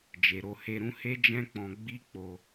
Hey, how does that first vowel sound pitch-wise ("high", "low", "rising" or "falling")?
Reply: low